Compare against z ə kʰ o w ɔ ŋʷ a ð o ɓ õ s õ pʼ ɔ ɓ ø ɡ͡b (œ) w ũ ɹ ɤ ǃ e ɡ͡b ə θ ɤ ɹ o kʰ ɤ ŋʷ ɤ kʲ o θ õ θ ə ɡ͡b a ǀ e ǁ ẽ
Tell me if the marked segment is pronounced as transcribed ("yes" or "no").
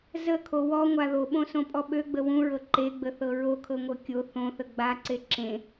no